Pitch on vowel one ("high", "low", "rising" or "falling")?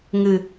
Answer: low